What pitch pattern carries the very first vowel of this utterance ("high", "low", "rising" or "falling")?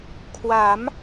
rising